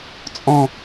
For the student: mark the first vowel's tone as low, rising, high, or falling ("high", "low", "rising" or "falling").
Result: falling